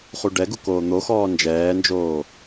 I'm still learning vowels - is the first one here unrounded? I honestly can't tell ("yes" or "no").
no